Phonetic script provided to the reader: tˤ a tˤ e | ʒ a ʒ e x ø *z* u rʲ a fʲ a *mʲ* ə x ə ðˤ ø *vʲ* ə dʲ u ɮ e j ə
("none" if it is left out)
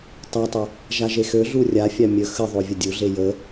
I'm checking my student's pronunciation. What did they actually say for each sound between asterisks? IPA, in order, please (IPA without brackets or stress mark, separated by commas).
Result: ɮ, mʲ, vʲ